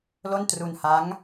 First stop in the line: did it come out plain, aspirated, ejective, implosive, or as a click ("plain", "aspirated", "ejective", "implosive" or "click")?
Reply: plain